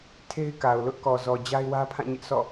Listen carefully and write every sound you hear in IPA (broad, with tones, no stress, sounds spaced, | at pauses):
tʰ e˦ ɪ̯ k a˨ ʊ̯ l ʊ˦ ʔ k ɔ˨ z ɔ˨ d͡ʑ a˦ ɪ̯ w ä˦ pʰ ã˦˨ ɲ ɪ˦ ʔ sʰ ɔ̰˦˨